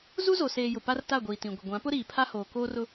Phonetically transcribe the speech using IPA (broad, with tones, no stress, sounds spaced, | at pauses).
z u˦ z o˨ s eː˨ j ʊ˨ p a˦ r t a˦˨ ɡʷ iː˨ t ĩ˨ ɡʷ ɪ˨ ɡʷ ã˨˦ p ʊ˦ ɾ iː˨ pʰ a˦ h oː˨ k oː˦ r ʊ˦